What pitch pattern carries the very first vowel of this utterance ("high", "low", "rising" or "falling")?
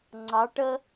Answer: rising